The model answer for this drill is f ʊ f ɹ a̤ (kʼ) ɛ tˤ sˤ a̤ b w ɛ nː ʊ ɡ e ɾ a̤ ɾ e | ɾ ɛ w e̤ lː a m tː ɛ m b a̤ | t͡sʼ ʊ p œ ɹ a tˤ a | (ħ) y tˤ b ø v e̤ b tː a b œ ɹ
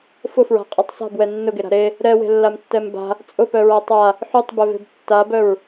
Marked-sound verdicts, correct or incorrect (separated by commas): incorrect, correct